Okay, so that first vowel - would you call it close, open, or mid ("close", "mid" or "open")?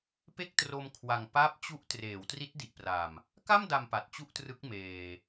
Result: mid